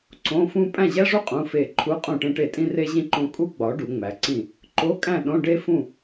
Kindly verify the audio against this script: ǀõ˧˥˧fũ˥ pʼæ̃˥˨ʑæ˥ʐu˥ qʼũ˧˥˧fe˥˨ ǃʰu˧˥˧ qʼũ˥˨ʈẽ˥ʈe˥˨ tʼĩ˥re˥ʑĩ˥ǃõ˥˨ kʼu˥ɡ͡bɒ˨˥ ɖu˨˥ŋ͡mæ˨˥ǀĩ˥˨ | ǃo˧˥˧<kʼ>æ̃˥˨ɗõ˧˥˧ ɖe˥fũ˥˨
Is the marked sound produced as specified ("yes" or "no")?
yes